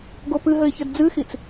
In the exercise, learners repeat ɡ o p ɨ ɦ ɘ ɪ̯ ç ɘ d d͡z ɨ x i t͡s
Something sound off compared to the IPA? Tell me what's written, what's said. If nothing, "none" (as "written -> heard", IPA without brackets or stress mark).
none